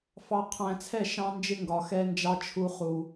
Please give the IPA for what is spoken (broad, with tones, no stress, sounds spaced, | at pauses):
f ɑ˨ qʰ æ̃˨ t͡sʰ ɛ˦˨ ʃ ɑ̃˦ n d͡ʒ ɪ˦ ŋ ɡ ɒ˨ x ɛ˦ n d͡ʒ ɑ˦ t͡ʃʰ u˦ χ u˦